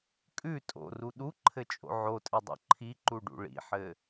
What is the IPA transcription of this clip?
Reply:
kʼ ʉ tʼ o̰ r u ɗ u ǃʰ ɘ t͡ʃʼ o̰ ʕ o tʼ ɘ dˤ o̰ ǃʰ i ǃ u ɖ ṵ ɭ ḭ ħ ɘ

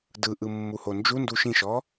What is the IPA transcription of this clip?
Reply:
d ɯ ʔ ɯ mː u h o n d͡ʒ u n d u ʃ ĩ ʃ ɔ

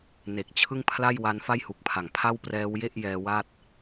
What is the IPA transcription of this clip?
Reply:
n e˨˩ k̚ t͡ɕʰ ɯ˥˩ ŋ pʰ l a˥˩ j w a˦˥ n f a˥˩ j h u˨˩ k̚ pʰ a˨˩ ŋ pʰ a˥˩ w p r ɛː˦˥ w j e˥˩ ʔ j ɛː˧ w a˥˩ t̚

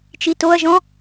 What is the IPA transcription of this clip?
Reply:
t͡ʃ i t o ɐ̯ ʒ ɔ̃

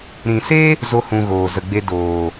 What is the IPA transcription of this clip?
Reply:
ɾ ĩ˨ s e˦ | z o˦ h ũ˧ ɣ oː˨ z ə˨ ɡ͡b e˧ d oː˨

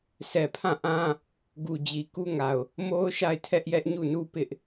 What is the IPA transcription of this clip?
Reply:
s ɛ˨ pʰ ã˦˨ ʔ ã˦ | ɡ u˨ d͡ʑ i˨ k u˦ ŋ a˨ ʊ̯ | m o˦ ʊ̯ ʃ a˦˨ ɪ̯ tʰ ɛ˦ ʔ j ɛ˦ ʔ ɲ u˦˨ n u˦ p ɪ˦ ʔ

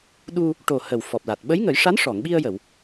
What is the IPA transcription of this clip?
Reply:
ɗ u˧ | ʈ o˨˩ h ə˨˩ w f ɔ˨˩ p̚ l a˨˩ t̚ ɓ ə˧˥ j ŋ ə˨˩˦ j ʂ a˧˥ n ʂ ɔ˨˩˨ ŋ ɓ i˧ ə̯ j ə˨˩˨ w

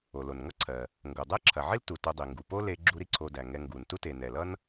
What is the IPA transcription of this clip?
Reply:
o˩ l o˩ n ŋ ʌ˥ ǀʰ ɜ˩ | ŋ ɡ o˩ dˤ ɛ˥ ǁʰ ɐ˩ ʕ i˥ l t u˩ t o˧ dˤ i˩ ŋ ɡ u˩ p o˥ l e˧ ɡ͡ǁ u˧ ɾ i˧ ǀʰ o˧ d æ˩ ŋ ɛ˧ ŋ ɡ u˩ n t u˥ t e˩ n ɛ˩ l ʌ˥ n

